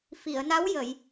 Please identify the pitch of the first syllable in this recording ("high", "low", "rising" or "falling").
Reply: low